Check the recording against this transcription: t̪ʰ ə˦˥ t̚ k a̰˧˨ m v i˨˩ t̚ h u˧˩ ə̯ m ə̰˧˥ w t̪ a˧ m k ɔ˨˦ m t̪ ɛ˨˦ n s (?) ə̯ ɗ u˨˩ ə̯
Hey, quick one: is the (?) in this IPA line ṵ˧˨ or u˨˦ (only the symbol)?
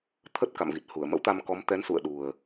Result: ṵ˧˨